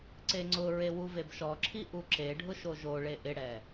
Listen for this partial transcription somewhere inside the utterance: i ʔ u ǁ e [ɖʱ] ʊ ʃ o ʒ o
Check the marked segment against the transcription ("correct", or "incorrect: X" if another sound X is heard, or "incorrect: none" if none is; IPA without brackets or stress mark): correct